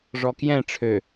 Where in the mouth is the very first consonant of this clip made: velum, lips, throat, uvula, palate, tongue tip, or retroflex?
retroflex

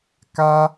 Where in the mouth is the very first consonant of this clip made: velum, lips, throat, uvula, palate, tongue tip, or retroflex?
velum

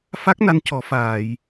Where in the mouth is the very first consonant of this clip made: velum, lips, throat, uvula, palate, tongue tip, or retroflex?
lips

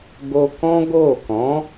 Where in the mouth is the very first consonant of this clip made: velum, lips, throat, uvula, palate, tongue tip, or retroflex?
velum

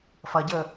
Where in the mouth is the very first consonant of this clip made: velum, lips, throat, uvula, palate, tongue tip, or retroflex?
lips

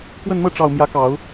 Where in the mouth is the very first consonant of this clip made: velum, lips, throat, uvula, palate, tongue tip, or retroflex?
velum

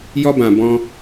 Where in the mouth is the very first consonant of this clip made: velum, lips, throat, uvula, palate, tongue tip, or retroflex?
palate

